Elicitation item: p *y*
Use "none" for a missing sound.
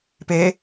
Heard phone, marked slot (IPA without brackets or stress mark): e